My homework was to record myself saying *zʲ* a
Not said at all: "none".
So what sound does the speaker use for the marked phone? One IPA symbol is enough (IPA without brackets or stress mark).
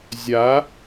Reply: zʲ